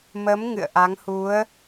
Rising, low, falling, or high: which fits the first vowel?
rising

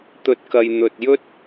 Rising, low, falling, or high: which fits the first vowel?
low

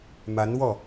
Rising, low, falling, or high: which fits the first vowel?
rising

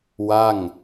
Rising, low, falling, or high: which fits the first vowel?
falling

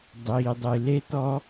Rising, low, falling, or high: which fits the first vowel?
low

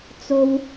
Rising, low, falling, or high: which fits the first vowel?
high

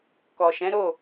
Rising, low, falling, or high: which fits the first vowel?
low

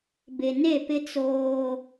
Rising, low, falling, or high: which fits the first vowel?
low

